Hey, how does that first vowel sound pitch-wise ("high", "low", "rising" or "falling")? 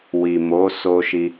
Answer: low